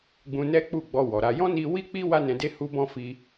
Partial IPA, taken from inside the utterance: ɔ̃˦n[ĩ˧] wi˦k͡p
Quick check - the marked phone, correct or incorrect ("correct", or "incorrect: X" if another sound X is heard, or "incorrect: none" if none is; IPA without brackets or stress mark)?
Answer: incorrect: i˧